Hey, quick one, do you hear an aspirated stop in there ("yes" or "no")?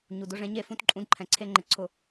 yes